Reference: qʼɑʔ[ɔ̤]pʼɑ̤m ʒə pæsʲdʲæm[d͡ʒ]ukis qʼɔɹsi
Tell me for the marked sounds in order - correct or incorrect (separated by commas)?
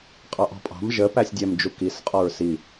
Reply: correct, correct